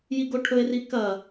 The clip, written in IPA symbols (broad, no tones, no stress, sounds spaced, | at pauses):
j i ɡ o ʈʰ ɵ e̯ r i k ɐ